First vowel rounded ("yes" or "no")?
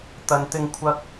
no